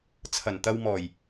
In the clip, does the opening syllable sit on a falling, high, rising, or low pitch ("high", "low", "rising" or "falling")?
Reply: low